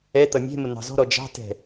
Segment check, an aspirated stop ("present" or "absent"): absent